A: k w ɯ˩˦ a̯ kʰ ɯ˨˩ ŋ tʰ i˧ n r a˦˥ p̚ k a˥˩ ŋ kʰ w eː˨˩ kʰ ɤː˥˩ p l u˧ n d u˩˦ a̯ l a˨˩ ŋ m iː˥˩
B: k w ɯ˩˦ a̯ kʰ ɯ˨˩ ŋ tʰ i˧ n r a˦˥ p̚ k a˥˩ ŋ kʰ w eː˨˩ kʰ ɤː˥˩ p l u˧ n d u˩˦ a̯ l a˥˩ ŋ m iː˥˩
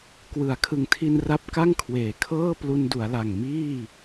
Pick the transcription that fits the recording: A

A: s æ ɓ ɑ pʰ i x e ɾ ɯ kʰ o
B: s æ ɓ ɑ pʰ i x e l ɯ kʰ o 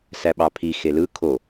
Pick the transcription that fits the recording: B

